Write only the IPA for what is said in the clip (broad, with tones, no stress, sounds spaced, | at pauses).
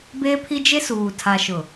b eː˦ pʰ i˦ d͡ʒ e˦ s uː˨ tʰ a˨ ʃ ʊ˨